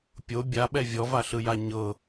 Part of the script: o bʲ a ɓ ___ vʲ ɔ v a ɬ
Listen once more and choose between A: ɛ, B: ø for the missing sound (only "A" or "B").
A